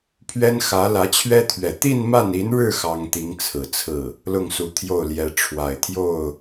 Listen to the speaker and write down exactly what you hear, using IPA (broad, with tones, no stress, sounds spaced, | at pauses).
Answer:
pʰ ɥ ɛ˥ n x ä˧˥ l ä˧˥ t͡ɕʰ ɥ ɛ˥ t̪ʰ ɥ ɛ˨˩ t̪ i˥˧ n m a˥˩ n i˧˥ n ɻ ɻ̩˥˩ x ɑ˥ ŋ t̪ i˧˥ ŋ t͡sʰ ɹ̩˨˩ t͡sʰ ɹ̩˥˩ | l ʊ˥˩ ŋ s u˧˥ t̪ʰ j o˥˩ ʊ̯ l j ɛ˧˥ ʈ͡ʂʰ w a˨˩ ɪ̯ t̪ʰ j o˥˩ ʊ̯